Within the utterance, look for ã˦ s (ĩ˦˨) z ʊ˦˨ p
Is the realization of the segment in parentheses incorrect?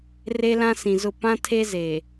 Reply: yes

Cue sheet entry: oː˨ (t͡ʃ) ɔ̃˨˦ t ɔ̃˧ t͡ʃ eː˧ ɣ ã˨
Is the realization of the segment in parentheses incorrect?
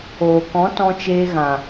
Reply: yes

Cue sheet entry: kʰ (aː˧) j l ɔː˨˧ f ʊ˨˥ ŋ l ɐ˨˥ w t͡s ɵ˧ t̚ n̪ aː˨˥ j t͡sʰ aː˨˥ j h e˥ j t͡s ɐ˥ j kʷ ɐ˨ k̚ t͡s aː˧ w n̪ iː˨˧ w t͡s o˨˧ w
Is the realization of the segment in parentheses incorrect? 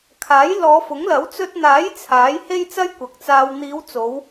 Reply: yes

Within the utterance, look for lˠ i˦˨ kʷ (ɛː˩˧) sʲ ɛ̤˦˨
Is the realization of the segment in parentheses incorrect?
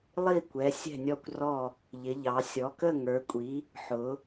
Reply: yes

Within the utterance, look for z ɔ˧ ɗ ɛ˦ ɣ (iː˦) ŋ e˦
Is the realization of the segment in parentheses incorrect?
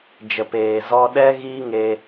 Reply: no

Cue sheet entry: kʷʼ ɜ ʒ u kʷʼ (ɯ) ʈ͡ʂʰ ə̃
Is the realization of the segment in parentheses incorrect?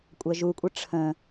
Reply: yes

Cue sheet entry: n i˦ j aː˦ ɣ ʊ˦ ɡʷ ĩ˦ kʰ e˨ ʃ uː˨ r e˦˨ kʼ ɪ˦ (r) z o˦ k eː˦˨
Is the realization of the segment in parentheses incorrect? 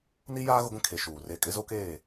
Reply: yes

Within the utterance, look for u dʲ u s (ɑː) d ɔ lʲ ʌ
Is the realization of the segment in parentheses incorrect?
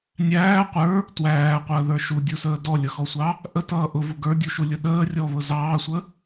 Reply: yes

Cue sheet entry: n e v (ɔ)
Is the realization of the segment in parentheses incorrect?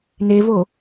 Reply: yes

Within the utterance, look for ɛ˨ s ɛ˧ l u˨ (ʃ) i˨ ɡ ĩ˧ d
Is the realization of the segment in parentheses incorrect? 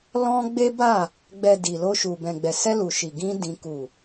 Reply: no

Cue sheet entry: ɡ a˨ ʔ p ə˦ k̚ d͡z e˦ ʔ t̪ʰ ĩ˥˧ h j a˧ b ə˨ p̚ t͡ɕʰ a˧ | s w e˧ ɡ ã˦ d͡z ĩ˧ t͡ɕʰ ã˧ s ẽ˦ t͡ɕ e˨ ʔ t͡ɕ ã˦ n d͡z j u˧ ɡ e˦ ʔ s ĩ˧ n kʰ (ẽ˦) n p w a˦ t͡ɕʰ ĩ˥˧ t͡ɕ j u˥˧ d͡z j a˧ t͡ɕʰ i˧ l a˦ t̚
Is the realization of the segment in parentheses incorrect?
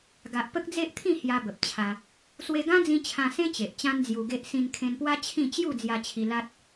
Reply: yes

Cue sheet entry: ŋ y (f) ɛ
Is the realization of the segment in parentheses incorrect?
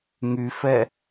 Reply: no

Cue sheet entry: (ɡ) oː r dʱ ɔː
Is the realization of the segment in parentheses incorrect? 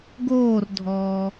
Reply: no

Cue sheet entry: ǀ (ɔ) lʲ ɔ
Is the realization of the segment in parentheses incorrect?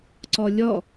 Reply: no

